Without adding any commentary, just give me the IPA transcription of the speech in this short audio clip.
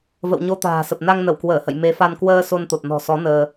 və̰˧˨wɲo˧ t̪a̤ː˨˩sə˨˩p̚ na˧ŋ nə˧˩wkwəː˧˩hə̰˧˨j me˨˦fa˧n kwəː˧ so˧nt̪o˨˩t̚ nɔ̤˨˩sɔ˨˦ nəː˧

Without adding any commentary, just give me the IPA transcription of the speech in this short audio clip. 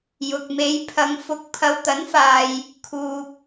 jʊ˨k̚me˨˧j pʰɐ˨ŋfʊ˨˥k̚ pʰɐ˨wt̪ɐ˨˥nfaː˨j | kʰuː˧k̚

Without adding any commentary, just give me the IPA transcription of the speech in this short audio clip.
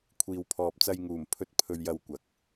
kʷʰiː˨wpʰɔː˨p̚t͡sɐ˧j ŋuː˨˩m pʰɵ˧t̚ pʰɵ˧ɥjɐ˧wkʷɐ˨k̚

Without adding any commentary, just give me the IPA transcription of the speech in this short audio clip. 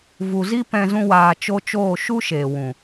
vu˨zi˦ pɛ̃˧ zũ˦waː˧t͡ʃo˦ t͡ʃoː˦˨ʃu˦ ʃeː˨ wũ˨

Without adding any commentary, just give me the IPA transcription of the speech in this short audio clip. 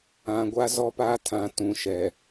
ã˨ ɡʷa˦zɔ˦paː˦ tʰã˨˦tũ˨ʃɛ˨

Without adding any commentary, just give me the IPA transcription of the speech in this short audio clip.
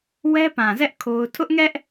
wɛ˦pã˨zɛ˦ʔ kʰo˦ʊ̯ tʰʊ˦ʔŋɛ˦ʔ

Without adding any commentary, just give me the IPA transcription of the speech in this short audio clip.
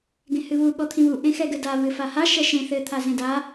ɡẽhɨβu ɠɔt̪ʰĩβu ʔẽxɛɡɘda βɨfaha ʃɛʃẽ θɘ t̪ʰazẽda

